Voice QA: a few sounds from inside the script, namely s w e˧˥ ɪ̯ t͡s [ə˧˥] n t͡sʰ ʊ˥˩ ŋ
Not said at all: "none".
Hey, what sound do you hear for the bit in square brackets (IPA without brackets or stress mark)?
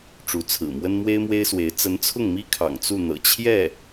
ə˧˥